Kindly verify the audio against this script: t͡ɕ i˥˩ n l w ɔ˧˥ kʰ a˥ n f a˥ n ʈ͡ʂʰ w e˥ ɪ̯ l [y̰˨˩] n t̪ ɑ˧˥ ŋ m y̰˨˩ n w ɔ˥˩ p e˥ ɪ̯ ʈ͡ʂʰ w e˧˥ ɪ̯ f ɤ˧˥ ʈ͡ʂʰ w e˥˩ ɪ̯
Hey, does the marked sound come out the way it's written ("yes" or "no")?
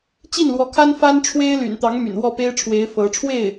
yes